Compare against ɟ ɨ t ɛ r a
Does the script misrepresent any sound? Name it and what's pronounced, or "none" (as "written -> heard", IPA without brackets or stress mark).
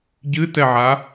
r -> ʕ